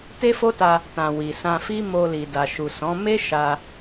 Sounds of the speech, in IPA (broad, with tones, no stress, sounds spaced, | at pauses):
t e˦ f o˦ t a˧ | t ã˨ w i˨ s ã˧ f i˦ m o˧ l i˨ d a˨ ʃ u˨ s ɔ̃˨˦ m e˦ ʃ a˧